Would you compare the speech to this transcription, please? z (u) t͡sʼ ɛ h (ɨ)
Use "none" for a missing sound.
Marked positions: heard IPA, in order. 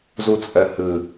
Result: u, ɨ

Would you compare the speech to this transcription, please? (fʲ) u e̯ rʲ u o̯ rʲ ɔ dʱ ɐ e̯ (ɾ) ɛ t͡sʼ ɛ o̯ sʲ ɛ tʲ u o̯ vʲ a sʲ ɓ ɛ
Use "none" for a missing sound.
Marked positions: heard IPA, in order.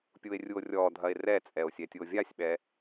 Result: pʲ, r

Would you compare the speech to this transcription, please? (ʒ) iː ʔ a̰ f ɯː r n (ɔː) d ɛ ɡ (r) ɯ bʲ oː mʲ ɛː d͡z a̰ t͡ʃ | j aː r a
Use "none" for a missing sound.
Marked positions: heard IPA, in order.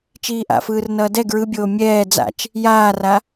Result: t͡ʃ, ʌː, ɹ

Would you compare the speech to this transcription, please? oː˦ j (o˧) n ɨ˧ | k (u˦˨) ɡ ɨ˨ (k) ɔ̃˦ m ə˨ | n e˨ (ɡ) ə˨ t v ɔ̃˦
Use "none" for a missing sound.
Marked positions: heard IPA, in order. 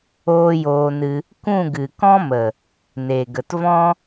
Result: oː˧, ũ˦˨, k, ɡ

